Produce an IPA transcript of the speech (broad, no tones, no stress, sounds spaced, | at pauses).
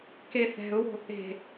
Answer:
k e θ ɛ̤ ʊ̯ w o̤ | e̤